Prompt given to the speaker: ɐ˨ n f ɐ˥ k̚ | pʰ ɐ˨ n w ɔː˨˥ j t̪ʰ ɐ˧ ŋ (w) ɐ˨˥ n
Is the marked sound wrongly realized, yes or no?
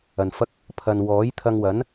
no